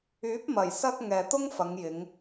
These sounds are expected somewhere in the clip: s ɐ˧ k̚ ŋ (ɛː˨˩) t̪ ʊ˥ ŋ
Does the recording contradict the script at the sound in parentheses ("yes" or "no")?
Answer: yes